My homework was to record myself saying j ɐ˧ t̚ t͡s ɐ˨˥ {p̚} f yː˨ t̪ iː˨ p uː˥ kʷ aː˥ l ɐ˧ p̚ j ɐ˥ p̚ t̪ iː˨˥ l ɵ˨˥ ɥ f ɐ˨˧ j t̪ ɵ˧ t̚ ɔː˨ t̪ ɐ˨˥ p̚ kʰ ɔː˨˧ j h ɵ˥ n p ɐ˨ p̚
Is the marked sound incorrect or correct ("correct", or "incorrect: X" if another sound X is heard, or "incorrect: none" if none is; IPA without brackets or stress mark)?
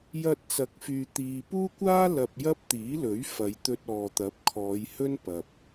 incorrect: k̚